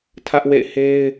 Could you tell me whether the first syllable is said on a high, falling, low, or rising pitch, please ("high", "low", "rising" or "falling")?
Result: high